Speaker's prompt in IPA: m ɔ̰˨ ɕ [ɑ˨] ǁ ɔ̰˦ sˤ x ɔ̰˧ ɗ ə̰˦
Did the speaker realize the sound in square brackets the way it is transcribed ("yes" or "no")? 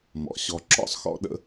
no